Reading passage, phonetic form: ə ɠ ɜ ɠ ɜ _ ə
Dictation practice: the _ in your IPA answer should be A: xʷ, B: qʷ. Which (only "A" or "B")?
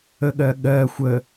A